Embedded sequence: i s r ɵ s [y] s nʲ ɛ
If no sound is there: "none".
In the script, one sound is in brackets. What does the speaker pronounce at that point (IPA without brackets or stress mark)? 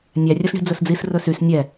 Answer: y